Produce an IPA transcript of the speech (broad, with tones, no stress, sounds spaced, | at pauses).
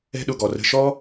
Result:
ɛ̤˦ ɗ ʊ˧ ɡ ɔ˨ r ə̤˧ ʃ ɔ˦